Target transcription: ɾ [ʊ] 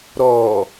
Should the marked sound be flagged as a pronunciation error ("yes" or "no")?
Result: yes